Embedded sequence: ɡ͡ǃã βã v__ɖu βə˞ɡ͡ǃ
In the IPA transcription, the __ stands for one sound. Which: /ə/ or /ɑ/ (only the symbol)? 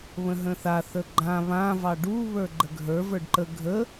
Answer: ɑ